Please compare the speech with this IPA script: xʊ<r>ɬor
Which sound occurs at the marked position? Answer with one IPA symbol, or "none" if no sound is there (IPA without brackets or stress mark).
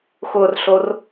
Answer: r